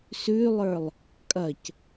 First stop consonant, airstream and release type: ejective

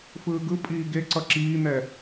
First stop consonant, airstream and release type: plain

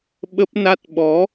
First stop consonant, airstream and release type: implosive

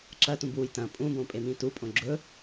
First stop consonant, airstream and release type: click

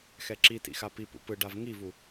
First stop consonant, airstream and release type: click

